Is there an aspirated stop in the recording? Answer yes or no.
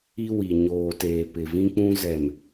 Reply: no